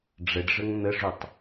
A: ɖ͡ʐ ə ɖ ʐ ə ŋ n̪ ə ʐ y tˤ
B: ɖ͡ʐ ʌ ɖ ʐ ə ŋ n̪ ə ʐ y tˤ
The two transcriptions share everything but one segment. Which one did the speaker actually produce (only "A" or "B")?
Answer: A